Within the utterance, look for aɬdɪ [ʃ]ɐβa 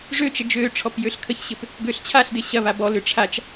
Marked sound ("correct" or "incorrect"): incorrect